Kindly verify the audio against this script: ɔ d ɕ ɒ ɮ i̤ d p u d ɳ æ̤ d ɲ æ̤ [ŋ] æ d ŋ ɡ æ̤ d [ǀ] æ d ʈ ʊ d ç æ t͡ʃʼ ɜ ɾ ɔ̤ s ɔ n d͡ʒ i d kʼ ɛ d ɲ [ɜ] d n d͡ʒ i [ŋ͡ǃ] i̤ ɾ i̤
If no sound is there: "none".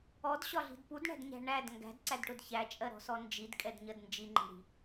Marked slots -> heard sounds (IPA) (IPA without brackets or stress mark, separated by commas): ɳ, ǀ, ɜ, ŋ͡ǃ